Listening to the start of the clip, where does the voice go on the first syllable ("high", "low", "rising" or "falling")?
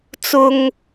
low